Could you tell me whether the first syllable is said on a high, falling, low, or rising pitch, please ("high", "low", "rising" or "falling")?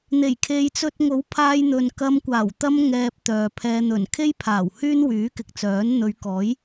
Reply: low